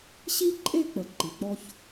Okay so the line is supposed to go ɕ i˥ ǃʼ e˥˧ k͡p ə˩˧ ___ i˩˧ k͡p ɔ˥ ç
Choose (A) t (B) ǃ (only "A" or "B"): B